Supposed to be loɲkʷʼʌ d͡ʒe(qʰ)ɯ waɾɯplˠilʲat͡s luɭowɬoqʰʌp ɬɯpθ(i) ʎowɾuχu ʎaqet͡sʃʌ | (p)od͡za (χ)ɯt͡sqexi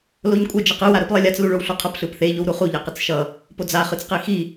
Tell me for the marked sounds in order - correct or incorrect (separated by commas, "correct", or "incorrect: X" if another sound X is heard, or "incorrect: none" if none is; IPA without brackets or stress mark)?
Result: incorrect: q, incorrect: e, correct, correct